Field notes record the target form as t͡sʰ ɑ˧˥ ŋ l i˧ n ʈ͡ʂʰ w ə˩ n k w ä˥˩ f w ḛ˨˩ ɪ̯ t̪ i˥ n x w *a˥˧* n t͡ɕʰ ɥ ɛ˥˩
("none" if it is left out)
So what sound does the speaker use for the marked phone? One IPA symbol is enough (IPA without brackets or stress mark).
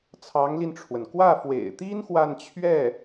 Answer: a˥˧